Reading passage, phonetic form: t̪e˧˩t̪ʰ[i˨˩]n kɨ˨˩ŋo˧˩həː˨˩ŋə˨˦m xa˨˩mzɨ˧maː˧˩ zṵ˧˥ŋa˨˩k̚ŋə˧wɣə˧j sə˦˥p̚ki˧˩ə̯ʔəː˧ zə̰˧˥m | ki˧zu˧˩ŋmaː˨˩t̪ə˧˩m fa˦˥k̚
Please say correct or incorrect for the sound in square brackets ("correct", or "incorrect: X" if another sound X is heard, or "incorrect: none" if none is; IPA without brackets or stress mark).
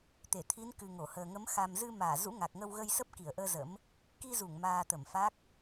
incorrect: i˨˦